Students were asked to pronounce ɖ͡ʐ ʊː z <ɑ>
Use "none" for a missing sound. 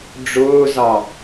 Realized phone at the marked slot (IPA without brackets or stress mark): ɑ